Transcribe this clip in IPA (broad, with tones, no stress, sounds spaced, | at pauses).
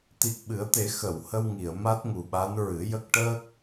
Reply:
t̪ i˨˩ k̚ ɓ ɨ˨˩˦ ə̯ t̪ e˨˩˦ x ə˨˩˨ w h ə˧ w ŋ i˨˩˨ ə̯ m a˦˥ t̚ ŋ u˨˩ ɓ a˧˥ n ɹ ɨ˨˩˦ j ə˦˥ k̚ ʈ əː˦˥ k̚